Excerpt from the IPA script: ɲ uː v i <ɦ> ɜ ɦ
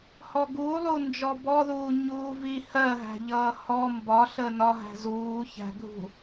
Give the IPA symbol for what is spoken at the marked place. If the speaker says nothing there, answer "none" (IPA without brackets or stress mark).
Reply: h